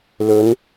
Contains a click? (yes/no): no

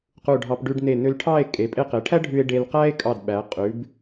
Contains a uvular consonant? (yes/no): yes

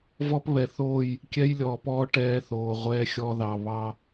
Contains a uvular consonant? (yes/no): yes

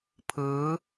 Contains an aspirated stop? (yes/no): yes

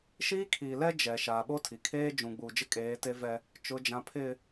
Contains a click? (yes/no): no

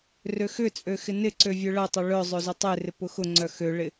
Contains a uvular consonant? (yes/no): no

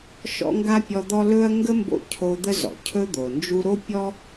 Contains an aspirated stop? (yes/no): yes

